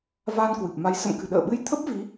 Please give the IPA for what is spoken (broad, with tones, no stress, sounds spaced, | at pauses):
v aː˧ n k w ɨ˨˩ p̚ m a˨˦ j s ə̰˧˨ m k ɨ̤˨˩ ɗ ə̰ː˧˨ ɓ ɨ˧ j t̪ʰ ə˦˥ p̚ v i˨˦